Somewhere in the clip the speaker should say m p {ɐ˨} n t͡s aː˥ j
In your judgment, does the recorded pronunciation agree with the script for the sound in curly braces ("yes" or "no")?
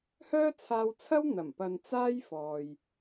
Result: yes